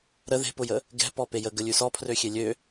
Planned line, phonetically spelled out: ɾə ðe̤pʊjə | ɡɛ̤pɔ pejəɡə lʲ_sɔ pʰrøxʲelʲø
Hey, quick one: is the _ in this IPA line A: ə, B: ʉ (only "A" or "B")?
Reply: B